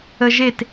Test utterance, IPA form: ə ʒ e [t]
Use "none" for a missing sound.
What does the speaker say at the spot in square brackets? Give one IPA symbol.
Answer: t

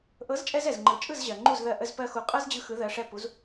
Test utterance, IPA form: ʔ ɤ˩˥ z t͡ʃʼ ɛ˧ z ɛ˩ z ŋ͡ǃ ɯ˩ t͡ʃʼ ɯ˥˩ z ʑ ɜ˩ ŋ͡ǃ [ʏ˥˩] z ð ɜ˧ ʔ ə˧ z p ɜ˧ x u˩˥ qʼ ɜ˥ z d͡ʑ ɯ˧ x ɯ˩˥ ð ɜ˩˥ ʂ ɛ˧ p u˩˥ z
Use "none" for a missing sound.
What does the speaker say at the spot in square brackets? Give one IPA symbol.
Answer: u˥˩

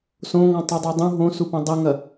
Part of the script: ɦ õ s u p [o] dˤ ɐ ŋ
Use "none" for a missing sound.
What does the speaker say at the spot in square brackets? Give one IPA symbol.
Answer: õ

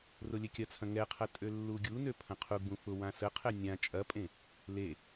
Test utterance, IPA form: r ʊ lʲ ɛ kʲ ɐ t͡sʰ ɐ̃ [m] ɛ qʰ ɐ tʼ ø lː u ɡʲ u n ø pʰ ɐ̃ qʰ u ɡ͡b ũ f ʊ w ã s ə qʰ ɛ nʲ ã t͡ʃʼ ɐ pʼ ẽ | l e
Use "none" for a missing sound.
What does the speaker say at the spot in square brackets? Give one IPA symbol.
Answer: ŋ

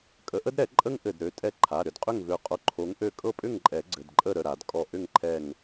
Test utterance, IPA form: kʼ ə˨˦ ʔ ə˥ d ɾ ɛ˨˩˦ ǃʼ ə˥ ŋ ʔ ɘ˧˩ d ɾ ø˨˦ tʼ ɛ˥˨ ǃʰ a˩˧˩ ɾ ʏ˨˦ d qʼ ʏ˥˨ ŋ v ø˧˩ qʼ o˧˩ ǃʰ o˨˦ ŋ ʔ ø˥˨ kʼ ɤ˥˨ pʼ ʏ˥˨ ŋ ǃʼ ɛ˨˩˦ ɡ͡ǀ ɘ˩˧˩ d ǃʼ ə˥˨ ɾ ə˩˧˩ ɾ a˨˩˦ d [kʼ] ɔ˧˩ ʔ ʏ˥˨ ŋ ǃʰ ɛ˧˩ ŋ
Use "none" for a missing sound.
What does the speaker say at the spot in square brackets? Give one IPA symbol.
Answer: kʼ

